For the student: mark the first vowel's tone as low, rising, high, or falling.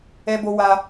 high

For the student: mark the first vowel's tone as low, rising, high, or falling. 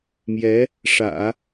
rising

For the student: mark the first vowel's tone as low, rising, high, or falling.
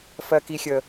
high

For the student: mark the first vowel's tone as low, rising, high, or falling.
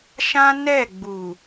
high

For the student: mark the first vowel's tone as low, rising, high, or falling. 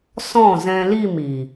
falling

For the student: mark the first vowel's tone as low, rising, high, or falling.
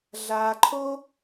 low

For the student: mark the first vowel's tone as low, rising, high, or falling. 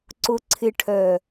low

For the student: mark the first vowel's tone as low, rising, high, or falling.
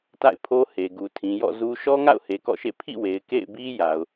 falling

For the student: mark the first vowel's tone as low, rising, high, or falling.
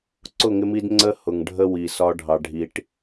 falling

